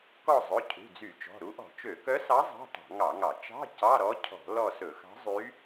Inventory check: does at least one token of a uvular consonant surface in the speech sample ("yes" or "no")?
no